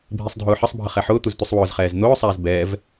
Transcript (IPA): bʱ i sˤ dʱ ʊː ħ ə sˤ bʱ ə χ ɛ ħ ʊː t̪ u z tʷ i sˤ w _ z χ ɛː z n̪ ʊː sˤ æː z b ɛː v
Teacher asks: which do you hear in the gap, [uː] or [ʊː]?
ʊː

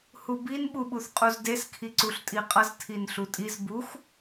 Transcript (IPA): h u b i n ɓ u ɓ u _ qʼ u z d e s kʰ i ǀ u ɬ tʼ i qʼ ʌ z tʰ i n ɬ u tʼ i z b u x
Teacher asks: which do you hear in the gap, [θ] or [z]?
θ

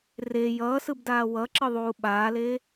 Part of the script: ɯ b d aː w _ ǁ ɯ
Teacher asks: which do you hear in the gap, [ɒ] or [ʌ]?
ʌ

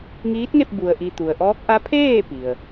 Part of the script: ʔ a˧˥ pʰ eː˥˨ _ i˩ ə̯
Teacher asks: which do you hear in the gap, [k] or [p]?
p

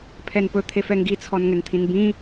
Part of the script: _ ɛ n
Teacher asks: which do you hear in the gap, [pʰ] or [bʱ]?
pʰ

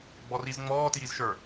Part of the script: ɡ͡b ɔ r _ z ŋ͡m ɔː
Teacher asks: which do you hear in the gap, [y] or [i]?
i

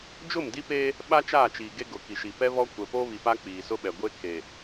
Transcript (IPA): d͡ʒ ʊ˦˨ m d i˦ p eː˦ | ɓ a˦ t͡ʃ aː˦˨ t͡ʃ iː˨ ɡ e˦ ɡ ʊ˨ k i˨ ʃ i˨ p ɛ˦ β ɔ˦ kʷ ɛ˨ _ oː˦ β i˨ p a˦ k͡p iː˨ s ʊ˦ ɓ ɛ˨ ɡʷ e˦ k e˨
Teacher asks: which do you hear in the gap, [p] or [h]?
p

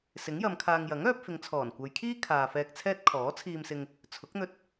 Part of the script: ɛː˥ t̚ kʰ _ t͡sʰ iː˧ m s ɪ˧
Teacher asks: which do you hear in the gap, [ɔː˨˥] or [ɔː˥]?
ɔː˨˥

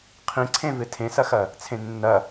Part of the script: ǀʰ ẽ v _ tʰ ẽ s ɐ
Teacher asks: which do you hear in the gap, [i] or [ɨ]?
ɨ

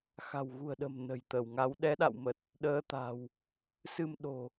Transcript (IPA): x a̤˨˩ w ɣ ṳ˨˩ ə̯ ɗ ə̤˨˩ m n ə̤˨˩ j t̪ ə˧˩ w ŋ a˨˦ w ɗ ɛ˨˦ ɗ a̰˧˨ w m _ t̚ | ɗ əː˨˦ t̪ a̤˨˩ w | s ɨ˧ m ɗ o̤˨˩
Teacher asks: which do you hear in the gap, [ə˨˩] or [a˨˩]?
ə˨˩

